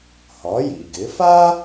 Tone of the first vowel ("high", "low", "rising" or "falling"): rising